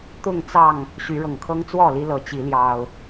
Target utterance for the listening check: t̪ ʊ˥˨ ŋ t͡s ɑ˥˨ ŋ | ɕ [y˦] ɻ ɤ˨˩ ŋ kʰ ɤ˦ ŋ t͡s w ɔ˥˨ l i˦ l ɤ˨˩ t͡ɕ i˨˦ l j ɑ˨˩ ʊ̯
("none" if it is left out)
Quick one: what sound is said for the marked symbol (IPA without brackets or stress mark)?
y˨˦